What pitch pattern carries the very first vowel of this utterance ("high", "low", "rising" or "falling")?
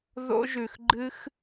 high